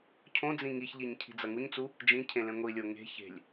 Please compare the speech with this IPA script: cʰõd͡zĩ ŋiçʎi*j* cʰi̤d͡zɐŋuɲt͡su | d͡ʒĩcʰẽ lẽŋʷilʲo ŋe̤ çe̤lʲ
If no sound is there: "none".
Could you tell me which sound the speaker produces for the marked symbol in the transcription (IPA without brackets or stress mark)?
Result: ɲ